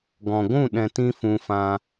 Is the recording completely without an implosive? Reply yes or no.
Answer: no